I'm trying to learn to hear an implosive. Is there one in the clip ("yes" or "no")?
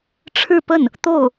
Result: no